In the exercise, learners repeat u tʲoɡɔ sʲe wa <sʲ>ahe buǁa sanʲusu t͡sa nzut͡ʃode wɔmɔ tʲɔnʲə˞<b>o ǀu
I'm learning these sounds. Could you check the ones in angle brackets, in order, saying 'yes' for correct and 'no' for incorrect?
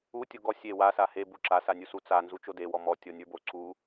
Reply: no, yes

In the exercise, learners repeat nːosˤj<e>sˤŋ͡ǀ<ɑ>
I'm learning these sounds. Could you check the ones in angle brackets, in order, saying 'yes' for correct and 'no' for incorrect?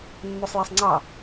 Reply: yes, yes

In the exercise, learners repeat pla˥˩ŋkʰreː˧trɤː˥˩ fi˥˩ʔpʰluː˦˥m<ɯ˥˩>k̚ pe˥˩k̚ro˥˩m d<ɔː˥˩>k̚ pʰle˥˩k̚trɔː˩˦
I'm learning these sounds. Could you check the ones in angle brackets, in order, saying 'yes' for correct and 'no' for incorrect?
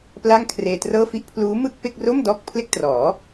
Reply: yes, yes

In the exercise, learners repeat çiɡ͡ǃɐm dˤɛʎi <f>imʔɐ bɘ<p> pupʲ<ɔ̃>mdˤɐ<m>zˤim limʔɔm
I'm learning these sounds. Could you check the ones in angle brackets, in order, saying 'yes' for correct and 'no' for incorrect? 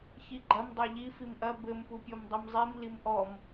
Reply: yes, no, no, yes

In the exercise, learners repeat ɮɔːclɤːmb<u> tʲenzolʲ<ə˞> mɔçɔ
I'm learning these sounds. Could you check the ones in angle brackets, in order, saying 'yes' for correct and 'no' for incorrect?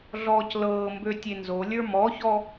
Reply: no, yes

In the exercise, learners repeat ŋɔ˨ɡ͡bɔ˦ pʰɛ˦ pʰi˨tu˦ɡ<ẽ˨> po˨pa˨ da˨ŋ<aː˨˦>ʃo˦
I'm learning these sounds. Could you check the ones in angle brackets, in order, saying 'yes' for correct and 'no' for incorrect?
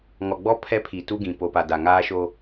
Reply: no, no

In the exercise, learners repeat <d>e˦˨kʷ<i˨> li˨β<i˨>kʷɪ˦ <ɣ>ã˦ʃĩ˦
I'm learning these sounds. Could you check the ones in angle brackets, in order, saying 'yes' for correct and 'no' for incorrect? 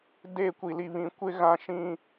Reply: yes, yes, no, yes

